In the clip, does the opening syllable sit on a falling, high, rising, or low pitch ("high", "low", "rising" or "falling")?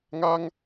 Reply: high